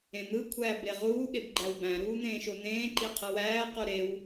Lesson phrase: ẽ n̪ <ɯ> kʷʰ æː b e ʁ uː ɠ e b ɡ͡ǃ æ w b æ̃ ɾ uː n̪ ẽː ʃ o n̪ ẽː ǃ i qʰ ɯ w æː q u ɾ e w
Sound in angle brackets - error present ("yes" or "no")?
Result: no